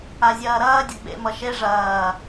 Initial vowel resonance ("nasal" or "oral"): oral